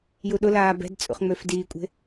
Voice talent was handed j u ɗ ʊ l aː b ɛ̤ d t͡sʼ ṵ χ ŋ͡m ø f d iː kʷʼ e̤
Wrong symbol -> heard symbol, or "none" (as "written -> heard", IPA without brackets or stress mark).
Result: none